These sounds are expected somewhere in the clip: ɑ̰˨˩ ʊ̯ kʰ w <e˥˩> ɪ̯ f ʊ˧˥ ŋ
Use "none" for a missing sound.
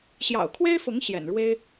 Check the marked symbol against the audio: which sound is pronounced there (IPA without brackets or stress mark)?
e˥